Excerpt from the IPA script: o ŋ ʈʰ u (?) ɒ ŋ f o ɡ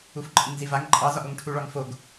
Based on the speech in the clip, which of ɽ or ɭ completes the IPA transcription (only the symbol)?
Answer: ɭ